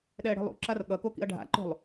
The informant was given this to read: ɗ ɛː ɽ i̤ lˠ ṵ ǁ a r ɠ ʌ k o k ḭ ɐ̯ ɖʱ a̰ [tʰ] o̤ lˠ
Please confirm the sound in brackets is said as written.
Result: no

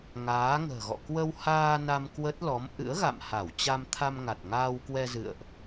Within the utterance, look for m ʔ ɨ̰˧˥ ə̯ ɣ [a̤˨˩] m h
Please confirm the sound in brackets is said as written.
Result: no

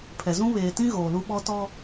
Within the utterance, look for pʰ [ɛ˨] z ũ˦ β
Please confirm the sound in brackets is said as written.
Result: yes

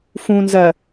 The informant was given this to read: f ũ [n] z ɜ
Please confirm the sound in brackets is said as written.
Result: yes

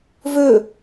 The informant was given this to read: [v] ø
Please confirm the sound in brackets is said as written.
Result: yes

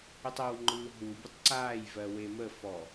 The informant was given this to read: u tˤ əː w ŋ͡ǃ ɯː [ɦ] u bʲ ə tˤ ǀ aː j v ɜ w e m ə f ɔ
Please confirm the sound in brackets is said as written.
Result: yes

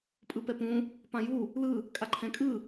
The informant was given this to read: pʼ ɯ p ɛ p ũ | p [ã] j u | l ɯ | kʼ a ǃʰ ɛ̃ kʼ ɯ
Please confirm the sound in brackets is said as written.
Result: yes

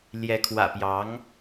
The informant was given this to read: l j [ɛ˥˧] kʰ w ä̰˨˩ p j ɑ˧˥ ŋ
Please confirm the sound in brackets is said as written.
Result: no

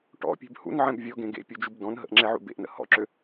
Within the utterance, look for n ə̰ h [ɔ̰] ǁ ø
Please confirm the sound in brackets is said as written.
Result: yes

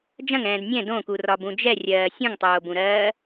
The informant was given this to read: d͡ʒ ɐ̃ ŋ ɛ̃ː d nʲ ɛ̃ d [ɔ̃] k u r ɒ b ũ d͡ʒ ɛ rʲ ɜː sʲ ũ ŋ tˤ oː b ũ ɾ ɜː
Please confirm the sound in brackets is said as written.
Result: no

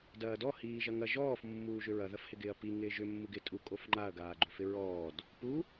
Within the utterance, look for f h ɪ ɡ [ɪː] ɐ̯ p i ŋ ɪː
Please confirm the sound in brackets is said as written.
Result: yes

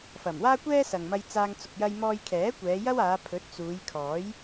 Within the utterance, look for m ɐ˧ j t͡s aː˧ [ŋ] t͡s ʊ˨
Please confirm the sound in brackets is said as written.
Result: yes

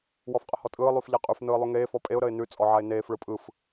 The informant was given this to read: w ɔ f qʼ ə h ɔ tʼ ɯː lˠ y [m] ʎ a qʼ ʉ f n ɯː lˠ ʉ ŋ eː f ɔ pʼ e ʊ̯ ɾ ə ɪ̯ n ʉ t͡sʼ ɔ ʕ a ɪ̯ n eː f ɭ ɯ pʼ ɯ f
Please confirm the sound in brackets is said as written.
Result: no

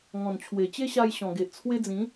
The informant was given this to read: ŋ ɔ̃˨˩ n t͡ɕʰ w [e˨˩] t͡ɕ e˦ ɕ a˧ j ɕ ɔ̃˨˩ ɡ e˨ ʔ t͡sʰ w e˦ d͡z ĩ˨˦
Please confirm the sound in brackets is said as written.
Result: yes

